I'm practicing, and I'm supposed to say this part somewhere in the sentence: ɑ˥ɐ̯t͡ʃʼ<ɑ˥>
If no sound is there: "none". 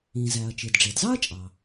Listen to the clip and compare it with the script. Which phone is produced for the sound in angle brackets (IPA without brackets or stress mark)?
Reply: ɑ˩